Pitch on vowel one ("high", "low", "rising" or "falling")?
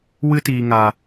high